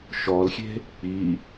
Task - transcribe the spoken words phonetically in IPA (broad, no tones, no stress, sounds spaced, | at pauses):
ʃ ɔ l xʲ e̤ | k͡p i